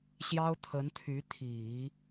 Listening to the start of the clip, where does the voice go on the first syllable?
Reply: high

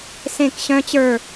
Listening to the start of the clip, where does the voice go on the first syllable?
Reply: falling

